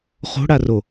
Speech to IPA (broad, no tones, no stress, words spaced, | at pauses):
χo̤ɽaro